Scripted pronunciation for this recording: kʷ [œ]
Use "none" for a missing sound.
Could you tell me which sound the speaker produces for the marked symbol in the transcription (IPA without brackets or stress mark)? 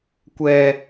ɛ